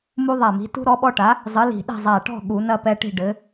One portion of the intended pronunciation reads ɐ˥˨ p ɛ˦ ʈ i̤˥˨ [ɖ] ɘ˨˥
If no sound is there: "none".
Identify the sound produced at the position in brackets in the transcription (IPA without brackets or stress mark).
ɖ